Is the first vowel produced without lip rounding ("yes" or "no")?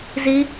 yes